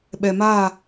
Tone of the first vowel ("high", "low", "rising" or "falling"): low